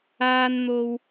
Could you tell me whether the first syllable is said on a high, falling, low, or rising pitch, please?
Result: high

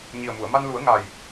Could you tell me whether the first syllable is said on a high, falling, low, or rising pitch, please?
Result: low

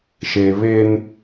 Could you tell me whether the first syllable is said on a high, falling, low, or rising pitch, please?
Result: low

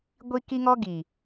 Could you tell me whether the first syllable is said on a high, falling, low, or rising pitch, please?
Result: high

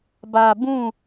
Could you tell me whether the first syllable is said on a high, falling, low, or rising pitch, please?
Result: low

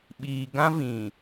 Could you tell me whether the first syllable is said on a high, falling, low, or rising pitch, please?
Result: low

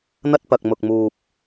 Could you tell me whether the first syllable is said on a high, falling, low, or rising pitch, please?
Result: high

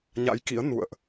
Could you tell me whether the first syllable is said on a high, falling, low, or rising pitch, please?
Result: rising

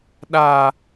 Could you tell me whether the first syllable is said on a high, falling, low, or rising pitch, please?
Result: high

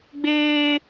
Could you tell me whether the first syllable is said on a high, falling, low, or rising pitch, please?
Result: high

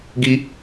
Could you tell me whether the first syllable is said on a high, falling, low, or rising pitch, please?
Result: high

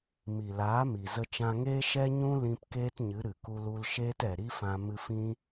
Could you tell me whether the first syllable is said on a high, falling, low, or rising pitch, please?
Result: low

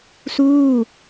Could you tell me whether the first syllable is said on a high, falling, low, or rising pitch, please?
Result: falling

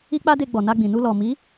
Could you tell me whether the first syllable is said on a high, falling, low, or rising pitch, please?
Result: high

